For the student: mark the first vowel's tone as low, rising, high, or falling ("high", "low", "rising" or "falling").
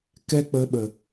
high